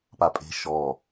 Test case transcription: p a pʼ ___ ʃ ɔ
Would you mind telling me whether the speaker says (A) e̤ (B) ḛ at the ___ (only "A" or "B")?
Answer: A